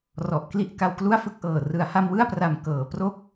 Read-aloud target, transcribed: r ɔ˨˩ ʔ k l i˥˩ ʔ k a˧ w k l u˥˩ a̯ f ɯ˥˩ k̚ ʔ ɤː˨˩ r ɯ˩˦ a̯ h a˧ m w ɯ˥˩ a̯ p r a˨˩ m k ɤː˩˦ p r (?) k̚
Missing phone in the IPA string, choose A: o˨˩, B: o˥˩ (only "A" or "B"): B